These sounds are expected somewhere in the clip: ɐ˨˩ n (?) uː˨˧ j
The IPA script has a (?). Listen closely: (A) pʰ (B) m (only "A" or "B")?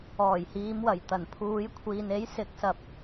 A